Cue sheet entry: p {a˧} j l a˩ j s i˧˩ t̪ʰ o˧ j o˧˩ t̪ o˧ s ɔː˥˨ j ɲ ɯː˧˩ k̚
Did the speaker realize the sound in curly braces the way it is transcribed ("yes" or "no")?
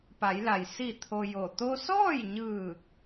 no